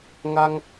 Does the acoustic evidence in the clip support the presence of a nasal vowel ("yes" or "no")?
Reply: no